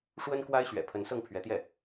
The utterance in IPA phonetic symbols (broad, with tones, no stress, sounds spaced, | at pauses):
ʂ w ə˥ n k w a˥ ɪ̯ ɕ ɥ ɛ̰˨˩ pʰ ə˧˥ n s ɤ˥˩ ŋ pʰ ɥ ɛ˧˥ t̪ j ɛ˥˩